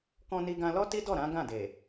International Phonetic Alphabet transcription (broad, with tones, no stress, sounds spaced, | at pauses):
k ɔ̃˧ n i˧ ɡ ã˧ l ɔ˦ t i˦ d ɔ˦˨ ɾ ã˨˦ ɡ ã˦˨ d e˨